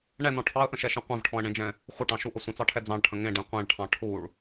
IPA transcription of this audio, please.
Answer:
ɳ ɛ n ɔ̃ ʈʰ ɑ ə̯ ʔ ə̃ ʃ ɛ ʃ ẽ qʷ ẽ v ʈʰ ɔ̃ ə̯ ɳ ẽ d͡ʒ ɛ̃ | χʷ ə ʈ ɑ̃ ʃ u ʔ ə sʷ ə̃ t͡s ɑ ʈʰ ɛ d͡z ɑ̃ ɭ ʈʰ ə̃ ŋ ẽ ɖ ẽ qʷ ɛ̃ ɭ ʈʰ ɑ̃ ʈʰ u ɭ

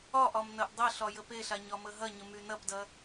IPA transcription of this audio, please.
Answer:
ɒ ʔ ɒ m n ɐ ʔ dˤ ɐ ɬ ɒ j ə p e ɬ a ɲ ɒ m ə ɦ ɐ ɲ ə m y n ɐ p d ɐ

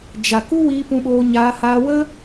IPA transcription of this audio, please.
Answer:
d͡ʒ a˨ k u˦ w iː˧ p ũ˧ ɓ oː˧ ɲ aː˧ h aː˧ w ə˦

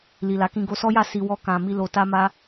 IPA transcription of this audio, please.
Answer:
l i˨ l a˨˦ k ĩ˧ ɡ o˧ s ɔ˦ j a˦˨ s i˧ w ɔ˦ k ã˧ m i˧ l o˧ t a˦ m a˦

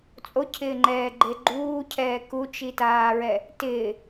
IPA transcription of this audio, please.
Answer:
t͡sʼ o cʰ ɪː ŋ͡ǃ ɛː ɡ͡ǃ e ɡ͡ǃ uː cʰ ɛː k u t͡ʃ i t aː ɹ ɛ | t ɪː

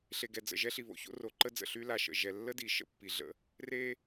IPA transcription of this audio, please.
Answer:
ɬ e˨ ɡ ɛ˨ d͡z ə̰˨ ʒ ɛ˦ ɬ i˨ β o̰˨ ç o̰˦ r o˨ ǃ ə˦ d͡z ə̰˨ ɬ y˦ l a˨ ʃ ə̰˨ ʒ ɛ˨ lː ə˦ d i˨ ʃ ə̰˦ pː i˨ ɮ ə̰˦ | r e˦

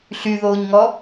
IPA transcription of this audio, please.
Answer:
ɬ y ð oː ɲ ŋ ɔː

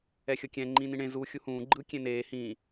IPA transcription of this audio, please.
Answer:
ɛ xʲ ɤ kʲ ɛ̃ ŋ͡ǃ ĩː n ĩ ɳ ẽ z u xʲ u h ũː ɡ͡ǃ ɯ kʲ ẽ n eː h ĩː

